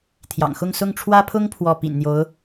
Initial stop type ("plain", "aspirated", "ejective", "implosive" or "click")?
aspirated